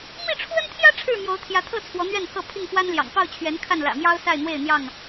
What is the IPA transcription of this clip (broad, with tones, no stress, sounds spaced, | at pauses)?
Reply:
m i˥˨ ʈ͡ʂʰ w ə˦ n t̪ʰ j ä˦ ʈ͡ʂʰ ɻ̩˥˨ m j o˨˦ ʊ̯ t̪ʰ j ä˨˦ t̪ʰ ɤ˥˨ t͡sʰ w ɔ˨˦ n̪ ɥ ɛ˥˨ n pʰ ɤ˥˨ pʰ i˥˨ ŋ f w a˦ n l j ɑ̰˨˩ ŋ p ɑ˥˨ ʊ̯ t͡ɕʰ ɥ ɛ˨˦ n kʰ a˥˨ n l ä̰˨˩ m j ɑ˦ ʊ̯ s a˥˨ ɪ̯ n̪ w e˥˨ ɪ̯ n̪ j ɑ˥˨ ŋ